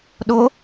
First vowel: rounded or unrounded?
rounded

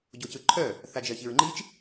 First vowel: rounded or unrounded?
rounded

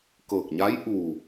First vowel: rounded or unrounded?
unrounded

